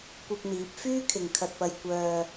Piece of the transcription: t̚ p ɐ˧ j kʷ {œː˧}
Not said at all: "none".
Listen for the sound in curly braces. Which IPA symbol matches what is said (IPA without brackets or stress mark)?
œː˧